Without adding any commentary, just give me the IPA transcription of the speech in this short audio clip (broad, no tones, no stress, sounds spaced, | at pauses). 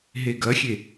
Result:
ɦ e ɡ ɐ xʲ e